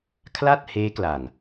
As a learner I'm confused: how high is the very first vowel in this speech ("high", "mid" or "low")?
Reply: low